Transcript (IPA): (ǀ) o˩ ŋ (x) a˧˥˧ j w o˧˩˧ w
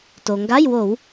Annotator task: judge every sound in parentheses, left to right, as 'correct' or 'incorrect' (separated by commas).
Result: incorrect, incorrect